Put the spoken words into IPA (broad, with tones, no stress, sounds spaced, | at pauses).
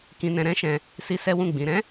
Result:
k ĩ˧ n ɛ̃˧ ɾ ɛ̃˦ ʃ ɛ̃˧ | s i˧ s ɛ˦ w ũ˦˨ ɡ͡b ĩ˨˦ ɾ ɛ̃˦